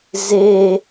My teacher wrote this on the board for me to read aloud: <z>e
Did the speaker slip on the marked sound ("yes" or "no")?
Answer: no